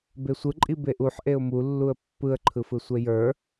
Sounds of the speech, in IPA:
besʷɯǃʼi beʔuħ ʔeʊ̯mulːuə̯ pːɯə̯ǃʰɯfɯsʷe jə˞

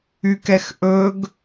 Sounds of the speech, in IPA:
ykɛxʔɵɡ

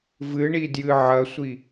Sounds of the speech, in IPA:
vɨɳidjɨ ʕɐsʷi

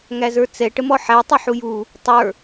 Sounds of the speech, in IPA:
ŋæzə˞t͡sɛ ʈəmɔħætˤi ħuju | tˤə˞

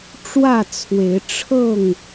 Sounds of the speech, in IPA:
ʈ͡ʂwä˥˨t͡sʰwe˨˦ɪ̯ ʈ͡ʂʰɤ˥˨ŋ

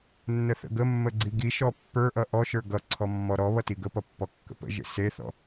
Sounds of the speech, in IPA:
nːəθə̰ɡəmːə ɡ͡ǀiɡiʃɔ pːə˞ʔʌ ʔɔʃə˞ ɡʌǀʰɔ mːɔɾɔβʌ tiɡəpʌ pːɔkːə̰pə̰ʒḛ seθɔ̰

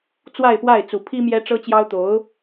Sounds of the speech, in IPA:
t͡swa˥˧ɪ̯pwa˥˩ɪ̯ t͡su˨˩pʰi˥ mjɛ˥ʈ͡ʂɤ˥t͡ɕjɑ˥ʊ̯t̪o˧˥ʊ̯

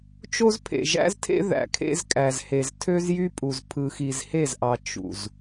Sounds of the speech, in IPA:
t͡ʃo˦zpʰḛ˨ ʒæ̰˦ztʰḛ˦ ðæ̰˨kʰḛ˦zkʼæ˨zhe˨z tʰø˦zjy˦pʼu˨z pʰɯ˨xi˨zhe˦˨zʔɑ˨ t͡ʃṵ˨z

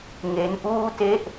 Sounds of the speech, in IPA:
ŋe˦˥nʔuː˥˩te˥˩ʔ

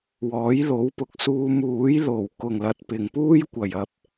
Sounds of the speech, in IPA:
wɔː˨˥jlo˨˥wpʊ˨˥k̚ suː˧muː˨˥jlo˨˩w kʊ˨˩ŋlɐ˨t̚pɪ˨˩ŋ puː˥j kʷɐ˨˩jɐ˨p̚

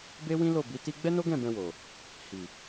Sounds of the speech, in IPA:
be˦wĩ˦lo˦˨ bi˨˦ti˦ ɡ͡bɛ˦no˦ɡɛ̃˦˨ bɛ̃˧wo˨ | hi˨

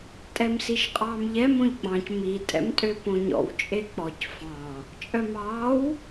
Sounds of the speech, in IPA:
tʼɛmsiʃqʼɑːmʎɛ mõʎɡ͡bɑ̃c mi tʼɛ̰mtʼøpõɲɔ̰w t͡ʃʼek͡pɔc fɑ̃ | t͡ʃʼœmɑːw

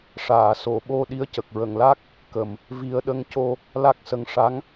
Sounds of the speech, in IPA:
ʂaː˨˩˨so˨˩˨ɓo˧ ɗi˧˥ə̯cə˨˩k̚ ɹə˨˩˨ŋla˦˥k̚ | kə˨˩m | vi˨˩˦ə̯ɗə˧˥ŋco˧ | la˦˥k̚sə˧ŋ ʂa˧˥ŋ

